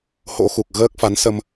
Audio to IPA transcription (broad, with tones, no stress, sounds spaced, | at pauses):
h o̰˧˥ x u˨˩ k̚ ɣ əː˦˥ k̚ f a˨˦ n s ə˧ m